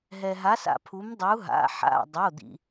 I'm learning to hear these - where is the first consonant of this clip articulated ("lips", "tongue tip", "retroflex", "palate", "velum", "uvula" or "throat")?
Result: throat